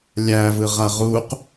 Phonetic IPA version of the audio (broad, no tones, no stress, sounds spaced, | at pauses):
lʲ æ v ɯ ʁ a ʁ u q